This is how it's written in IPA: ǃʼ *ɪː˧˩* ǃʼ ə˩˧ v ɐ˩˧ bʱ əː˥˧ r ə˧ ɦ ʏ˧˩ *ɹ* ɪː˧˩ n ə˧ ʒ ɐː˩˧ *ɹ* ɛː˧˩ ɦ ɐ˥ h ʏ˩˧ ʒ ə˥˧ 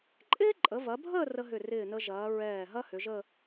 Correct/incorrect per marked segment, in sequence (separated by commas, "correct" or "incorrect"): incorrect, incorrect, correct